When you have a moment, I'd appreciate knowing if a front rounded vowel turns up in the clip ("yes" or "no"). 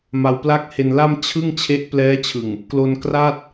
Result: no